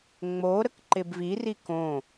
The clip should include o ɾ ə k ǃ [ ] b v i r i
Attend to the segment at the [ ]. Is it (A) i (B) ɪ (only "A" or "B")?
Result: B